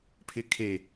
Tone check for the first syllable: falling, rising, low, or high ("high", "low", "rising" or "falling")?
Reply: rising